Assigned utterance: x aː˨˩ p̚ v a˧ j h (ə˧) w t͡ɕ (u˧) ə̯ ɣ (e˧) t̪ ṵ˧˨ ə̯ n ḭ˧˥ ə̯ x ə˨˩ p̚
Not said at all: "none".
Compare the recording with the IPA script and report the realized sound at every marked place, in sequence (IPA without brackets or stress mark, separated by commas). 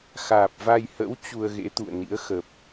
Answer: ə̰˧˥, u˧, ḛ˧˥